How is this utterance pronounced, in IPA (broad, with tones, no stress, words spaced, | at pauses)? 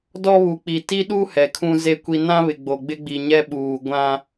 dɔ˦βu˨k͡pi˨ ti˦ɗu˦ hɛ˨kʰũ˦ze˦kʷi˦ nã˦βɪ˨ ɡ͡bo˨ɡ͡bɪ˦ɡ͡bi˨ ɲɛ˦ɓuː˨ ɡʷã˦